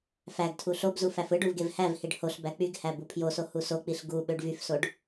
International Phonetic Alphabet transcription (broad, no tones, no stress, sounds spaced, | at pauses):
f æ ɡ tʰ u ɬ o b z u f æ f ɯ ɖ u v ɡ e v h æ v h i ɖ h o ɬ b æ k͡p y ɡ h æ b u pʰ j o s o h u s o k͡p i ɬ ɡ u ɓ ø ɖ v y f s o ɖ